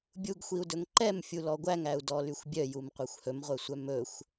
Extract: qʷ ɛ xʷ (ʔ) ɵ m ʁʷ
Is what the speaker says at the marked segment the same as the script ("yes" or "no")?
no